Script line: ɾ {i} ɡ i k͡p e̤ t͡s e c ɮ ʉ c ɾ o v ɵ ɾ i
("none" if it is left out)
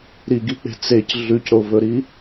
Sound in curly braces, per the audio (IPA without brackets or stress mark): i